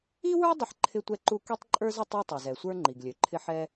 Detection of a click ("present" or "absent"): present